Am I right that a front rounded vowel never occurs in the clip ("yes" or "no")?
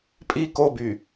no